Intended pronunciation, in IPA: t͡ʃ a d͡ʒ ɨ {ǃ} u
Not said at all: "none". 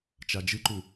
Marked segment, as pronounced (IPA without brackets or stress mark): ǃ